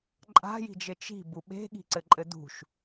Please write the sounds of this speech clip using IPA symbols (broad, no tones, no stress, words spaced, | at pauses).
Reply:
ǃʼa̤ji̤d͡ʒɘ t͡ʃi̤bu ɓe̤ɠi̤ǀɘǃʼɘ dṳʃ